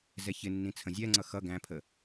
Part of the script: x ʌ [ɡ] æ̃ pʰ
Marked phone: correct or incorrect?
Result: correct